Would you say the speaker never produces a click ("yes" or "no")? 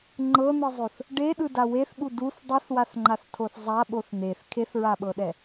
no